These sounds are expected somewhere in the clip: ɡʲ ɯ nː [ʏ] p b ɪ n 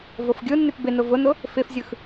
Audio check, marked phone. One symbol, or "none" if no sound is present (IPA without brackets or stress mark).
ʏ